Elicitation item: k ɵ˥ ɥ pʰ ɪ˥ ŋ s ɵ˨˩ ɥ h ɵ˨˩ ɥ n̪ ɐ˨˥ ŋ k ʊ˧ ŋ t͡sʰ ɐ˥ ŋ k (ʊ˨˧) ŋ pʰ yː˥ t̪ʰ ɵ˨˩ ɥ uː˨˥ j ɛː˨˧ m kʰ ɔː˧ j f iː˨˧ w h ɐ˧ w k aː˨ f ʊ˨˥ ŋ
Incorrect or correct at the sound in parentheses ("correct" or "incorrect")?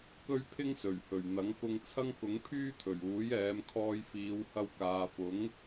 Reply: incorrect